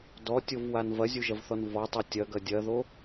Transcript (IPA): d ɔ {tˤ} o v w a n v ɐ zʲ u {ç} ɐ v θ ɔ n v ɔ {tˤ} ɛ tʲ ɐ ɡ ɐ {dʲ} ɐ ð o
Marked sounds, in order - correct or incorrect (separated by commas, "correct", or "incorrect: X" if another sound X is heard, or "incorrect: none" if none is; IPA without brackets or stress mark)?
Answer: incorrect: tʲ, incorrect: ʒ, correct, correct